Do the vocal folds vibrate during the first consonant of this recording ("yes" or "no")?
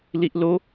yes